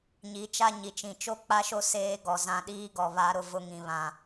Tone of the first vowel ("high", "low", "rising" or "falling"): rising